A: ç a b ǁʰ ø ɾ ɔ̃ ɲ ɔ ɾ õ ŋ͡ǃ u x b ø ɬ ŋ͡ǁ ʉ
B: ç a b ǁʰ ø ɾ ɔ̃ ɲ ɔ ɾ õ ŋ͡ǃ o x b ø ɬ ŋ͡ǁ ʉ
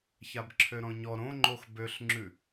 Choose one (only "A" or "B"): B